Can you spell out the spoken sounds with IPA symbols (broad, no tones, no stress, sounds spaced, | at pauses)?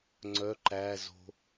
ŋ͡ǀ œ ǃ æ z o̤